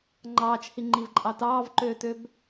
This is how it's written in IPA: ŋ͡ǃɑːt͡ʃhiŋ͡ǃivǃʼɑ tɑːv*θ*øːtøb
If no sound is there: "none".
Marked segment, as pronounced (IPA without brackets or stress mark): ǃ